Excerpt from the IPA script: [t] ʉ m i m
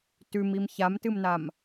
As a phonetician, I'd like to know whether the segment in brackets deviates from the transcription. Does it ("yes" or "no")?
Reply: no